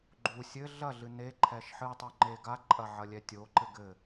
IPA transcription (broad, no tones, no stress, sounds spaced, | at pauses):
ɡ͡ǃ u sʲ ɘ ɮ ɐ ɮ ɨ n e ǃʰ ɛ ʃ ħ ɨ tˤ u ŋ͡ǃ e ɡ a ǃʼ ɐ ʕ ɐ lʲ ɛ tʲ o ǃ ɘ ɡ ɘ